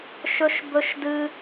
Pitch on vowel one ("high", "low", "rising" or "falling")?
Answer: high